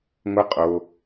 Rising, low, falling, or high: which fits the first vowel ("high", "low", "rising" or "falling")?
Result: high